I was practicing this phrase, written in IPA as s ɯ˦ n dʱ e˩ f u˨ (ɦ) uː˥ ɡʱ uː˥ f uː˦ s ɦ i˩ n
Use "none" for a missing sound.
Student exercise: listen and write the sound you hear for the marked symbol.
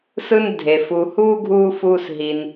h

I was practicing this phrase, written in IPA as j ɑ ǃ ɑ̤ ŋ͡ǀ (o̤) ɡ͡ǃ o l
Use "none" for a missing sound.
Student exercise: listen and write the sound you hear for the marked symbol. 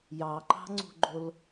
ṳ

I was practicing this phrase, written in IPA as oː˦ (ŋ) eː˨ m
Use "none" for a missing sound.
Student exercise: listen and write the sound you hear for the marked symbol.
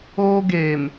ɡ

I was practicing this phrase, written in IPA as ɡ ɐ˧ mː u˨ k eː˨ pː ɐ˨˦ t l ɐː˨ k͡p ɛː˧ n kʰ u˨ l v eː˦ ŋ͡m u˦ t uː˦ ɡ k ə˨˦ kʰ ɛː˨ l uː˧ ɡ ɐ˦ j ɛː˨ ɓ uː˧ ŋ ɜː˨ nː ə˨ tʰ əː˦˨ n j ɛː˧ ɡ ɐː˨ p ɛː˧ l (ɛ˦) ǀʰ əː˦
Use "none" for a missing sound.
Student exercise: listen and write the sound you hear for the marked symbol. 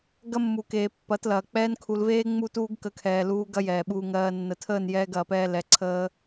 ɛ˨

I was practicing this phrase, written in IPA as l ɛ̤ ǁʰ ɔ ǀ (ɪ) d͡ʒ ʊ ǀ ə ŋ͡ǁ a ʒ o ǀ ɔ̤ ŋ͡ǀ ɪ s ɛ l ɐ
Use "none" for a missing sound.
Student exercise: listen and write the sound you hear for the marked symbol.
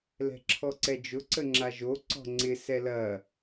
ɛ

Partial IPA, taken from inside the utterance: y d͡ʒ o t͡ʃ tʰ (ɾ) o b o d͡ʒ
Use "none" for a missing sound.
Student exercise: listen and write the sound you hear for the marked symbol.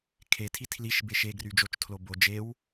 l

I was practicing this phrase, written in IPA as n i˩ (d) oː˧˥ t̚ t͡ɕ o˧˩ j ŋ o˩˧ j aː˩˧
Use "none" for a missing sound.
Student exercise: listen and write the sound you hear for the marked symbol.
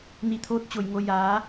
t̪ʰ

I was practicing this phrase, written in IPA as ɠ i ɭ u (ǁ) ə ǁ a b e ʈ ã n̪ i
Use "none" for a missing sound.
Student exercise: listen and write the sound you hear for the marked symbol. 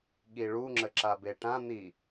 ŋ͡ǁ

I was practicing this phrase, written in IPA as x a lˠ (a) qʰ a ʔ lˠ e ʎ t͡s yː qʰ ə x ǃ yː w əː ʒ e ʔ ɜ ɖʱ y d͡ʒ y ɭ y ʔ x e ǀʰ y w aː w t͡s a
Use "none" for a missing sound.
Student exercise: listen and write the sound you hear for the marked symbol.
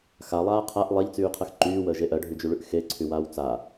aː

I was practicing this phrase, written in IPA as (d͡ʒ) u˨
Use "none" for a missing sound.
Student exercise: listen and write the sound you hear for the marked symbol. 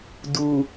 d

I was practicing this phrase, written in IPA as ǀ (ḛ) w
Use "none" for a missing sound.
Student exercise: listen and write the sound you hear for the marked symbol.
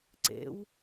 ḛ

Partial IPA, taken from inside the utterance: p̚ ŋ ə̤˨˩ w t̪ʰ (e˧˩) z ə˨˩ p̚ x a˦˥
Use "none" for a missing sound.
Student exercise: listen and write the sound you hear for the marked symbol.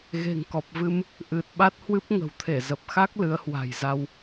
e˧˩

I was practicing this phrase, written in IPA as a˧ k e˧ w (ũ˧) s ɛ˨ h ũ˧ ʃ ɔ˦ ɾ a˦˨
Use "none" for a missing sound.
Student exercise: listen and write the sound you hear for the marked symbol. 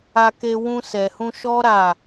ũ˧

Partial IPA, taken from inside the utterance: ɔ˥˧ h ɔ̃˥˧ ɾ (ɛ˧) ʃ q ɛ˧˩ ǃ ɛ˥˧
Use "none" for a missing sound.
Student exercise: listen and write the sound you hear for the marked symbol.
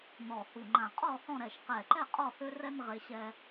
ɛ˧˩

